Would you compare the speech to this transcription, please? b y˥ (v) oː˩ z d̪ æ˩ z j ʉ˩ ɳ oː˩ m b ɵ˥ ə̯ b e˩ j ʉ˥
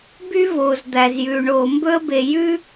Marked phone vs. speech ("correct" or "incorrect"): correct